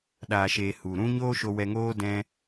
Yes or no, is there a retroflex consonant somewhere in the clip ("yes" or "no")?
no